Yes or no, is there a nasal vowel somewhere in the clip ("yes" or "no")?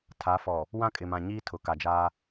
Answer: yes